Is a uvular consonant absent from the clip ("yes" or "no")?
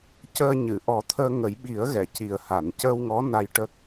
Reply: yes